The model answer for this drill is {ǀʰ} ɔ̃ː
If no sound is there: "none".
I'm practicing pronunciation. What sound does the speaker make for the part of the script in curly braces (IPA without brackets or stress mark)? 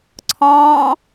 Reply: ǀʰ